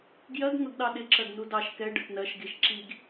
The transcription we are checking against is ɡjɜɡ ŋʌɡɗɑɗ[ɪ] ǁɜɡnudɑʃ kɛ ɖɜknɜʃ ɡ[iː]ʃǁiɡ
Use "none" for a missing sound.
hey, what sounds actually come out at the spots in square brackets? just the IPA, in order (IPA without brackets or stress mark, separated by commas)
ɪ, i